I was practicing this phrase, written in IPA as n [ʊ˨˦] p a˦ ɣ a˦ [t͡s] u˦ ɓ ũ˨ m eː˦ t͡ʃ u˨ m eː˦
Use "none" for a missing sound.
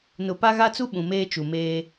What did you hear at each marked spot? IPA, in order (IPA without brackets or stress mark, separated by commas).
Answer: ʊ˨, t͡s